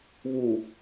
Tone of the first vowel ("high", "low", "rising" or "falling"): low